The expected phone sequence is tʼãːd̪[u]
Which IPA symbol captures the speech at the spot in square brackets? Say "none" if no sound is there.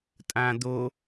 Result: o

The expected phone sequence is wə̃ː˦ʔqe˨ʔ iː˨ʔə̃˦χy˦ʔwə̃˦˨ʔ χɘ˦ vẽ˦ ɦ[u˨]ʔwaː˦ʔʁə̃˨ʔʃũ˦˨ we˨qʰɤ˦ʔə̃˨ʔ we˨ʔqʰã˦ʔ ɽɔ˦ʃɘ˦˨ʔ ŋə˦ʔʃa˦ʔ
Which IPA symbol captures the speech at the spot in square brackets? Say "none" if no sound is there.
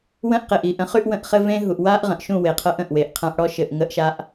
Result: u˨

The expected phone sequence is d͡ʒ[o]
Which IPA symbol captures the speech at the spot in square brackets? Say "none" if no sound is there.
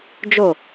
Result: o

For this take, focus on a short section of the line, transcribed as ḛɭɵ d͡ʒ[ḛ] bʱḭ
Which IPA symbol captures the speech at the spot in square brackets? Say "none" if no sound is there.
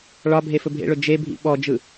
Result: e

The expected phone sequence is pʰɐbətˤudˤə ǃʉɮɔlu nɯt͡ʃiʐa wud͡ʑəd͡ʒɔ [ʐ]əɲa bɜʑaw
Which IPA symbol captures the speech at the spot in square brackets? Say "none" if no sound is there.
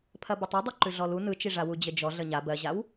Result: ɮ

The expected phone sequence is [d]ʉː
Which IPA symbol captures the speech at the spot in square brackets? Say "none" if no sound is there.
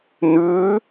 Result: n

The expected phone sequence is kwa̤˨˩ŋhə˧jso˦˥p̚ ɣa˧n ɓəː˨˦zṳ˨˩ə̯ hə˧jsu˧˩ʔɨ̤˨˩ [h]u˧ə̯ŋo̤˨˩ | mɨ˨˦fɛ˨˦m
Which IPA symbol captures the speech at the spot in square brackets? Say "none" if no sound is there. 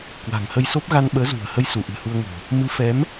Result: h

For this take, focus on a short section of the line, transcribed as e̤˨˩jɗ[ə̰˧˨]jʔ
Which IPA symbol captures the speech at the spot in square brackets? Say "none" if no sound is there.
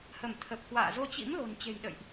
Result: ə̰˧˨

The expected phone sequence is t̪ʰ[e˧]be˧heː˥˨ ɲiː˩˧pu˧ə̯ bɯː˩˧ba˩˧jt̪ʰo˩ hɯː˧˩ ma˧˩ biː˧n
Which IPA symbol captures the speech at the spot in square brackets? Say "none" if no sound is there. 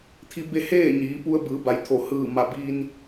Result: i˧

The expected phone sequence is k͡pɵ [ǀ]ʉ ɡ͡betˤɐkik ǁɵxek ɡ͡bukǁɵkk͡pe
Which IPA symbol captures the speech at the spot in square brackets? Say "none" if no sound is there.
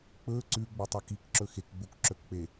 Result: ǀ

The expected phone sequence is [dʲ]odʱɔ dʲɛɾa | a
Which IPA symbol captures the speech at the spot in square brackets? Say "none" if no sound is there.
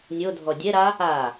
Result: nʲ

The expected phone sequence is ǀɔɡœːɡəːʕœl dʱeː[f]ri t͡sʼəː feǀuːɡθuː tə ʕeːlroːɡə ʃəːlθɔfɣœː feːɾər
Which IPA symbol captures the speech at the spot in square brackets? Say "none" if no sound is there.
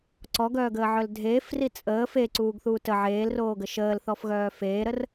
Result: f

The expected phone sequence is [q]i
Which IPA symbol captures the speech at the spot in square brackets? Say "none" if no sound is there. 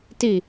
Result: t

